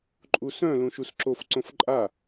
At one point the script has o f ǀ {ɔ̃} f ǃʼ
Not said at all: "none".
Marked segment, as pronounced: õ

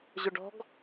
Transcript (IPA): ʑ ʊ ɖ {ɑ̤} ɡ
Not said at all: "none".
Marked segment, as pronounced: ɔ̤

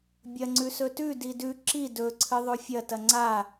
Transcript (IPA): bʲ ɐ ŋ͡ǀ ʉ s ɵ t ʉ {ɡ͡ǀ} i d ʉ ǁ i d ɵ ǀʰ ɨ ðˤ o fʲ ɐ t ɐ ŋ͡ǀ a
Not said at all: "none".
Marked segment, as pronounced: d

